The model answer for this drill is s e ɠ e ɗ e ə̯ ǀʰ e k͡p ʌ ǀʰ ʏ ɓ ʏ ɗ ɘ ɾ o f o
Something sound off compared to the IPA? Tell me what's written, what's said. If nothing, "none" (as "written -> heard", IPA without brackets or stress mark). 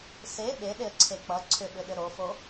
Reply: ɠ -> ɓ